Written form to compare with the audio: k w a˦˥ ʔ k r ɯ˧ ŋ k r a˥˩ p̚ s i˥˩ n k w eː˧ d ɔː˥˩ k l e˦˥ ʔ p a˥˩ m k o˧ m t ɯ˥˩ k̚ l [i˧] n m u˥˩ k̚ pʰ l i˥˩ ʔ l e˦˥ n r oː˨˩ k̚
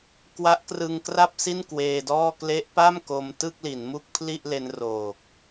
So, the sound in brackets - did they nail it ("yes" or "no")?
no